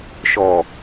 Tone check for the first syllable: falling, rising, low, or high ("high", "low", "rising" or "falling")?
low